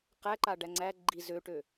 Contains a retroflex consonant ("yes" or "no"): yes